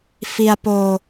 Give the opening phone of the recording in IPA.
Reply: f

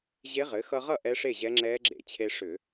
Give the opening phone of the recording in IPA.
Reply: ʑ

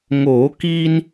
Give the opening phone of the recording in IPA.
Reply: ŋ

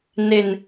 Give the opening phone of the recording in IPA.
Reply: n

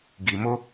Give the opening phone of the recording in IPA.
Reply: ɡ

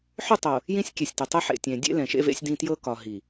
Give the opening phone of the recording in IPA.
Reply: ħ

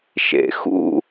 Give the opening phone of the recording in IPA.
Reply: ʃ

